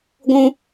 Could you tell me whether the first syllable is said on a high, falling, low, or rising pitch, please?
high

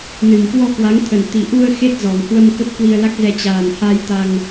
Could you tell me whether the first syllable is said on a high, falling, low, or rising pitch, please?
low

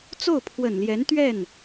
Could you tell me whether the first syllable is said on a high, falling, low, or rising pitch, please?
falling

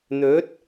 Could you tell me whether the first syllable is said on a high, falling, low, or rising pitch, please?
rising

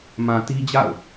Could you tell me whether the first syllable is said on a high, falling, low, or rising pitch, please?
low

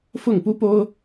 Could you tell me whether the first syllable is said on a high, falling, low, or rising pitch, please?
falling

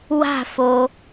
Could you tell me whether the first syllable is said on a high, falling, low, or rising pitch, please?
falling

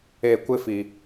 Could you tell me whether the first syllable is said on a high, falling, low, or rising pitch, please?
falling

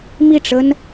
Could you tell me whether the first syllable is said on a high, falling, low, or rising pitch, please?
falling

